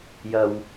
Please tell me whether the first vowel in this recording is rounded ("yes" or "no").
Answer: no